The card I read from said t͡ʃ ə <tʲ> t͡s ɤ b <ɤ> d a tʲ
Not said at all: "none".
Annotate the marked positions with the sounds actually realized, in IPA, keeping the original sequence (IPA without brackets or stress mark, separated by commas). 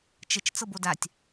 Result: t͡ʃ, o